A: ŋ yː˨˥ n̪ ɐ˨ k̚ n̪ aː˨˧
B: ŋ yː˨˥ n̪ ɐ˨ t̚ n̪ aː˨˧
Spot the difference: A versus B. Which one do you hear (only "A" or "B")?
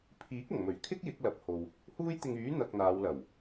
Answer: A